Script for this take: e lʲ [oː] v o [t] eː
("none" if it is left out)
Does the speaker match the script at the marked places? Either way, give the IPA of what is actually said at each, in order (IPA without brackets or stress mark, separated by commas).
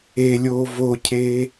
oː, cʰ